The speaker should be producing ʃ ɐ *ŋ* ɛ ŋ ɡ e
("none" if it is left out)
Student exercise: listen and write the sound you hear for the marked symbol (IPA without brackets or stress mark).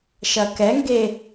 k